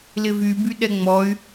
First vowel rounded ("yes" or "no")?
no